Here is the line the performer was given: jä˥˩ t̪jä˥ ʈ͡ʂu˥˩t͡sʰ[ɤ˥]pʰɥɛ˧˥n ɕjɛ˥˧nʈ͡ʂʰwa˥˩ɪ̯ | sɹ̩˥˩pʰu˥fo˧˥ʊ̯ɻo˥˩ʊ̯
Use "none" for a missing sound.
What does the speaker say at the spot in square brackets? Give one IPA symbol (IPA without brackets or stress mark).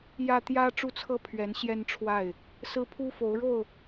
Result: ɤ˥